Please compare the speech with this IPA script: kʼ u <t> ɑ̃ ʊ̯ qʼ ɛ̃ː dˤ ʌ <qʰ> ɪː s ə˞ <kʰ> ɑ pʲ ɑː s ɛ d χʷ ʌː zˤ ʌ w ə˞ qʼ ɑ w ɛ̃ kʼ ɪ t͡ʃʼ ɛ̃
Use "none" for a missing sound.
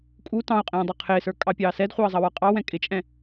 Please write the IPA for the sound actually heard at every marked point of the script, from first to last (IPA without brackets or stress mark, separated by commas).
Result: t, qʰ, kʼ